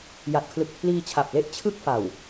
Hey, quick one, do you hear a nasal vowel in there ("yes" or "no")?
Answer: no